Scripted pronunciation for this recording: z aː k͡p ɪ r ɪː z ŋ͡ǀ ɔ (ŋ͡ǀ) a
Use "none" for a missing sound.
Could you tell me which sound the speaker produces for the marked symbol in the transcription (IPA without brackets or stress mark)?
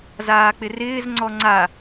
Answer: ŋ͡ǀ